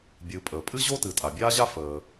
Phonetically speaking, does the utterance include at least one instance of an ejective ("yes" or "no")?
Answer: yes